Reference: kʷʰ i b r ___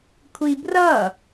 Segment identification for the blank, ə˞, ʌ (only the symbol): ʌ